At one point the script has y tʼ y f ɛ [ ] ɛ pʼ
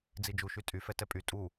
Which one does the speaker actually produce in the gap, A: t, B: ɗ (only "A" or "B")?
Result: A